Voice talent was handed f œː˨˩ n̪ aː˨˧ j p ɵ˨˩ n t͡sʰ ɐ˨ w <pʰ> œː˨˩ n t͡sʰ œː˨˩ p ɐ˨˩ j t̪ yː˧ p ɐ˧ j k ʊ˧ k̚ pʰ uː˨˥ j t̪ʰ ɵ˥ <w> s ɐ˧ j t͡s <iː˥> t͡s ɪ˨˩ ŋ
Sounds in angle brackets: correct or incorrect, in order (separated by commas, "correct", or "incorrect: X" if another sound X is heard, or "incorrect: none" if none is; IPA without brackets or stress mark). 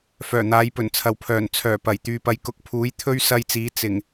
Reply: correct, incorrect: ɥ, incorrect: iː˨˧